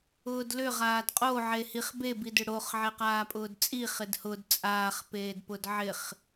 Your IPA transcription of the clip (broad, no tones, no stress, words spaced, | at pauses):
ʊːdlʏ ʁaːdqʼo ʕehiχ be bidʏɽoχ ʕeqaːpʼʊːdt͡sʼi χɪdhʊd t͡sʼaːχ peːdpʊdʕɪχ